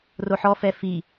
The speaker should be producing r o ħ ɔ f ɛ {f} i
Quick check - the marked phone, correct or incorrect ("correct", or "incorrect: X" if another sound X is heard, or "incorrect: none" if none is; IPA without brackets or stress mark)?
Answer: correct